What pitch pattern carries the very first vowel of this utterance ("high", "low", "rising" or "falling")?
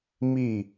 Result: falling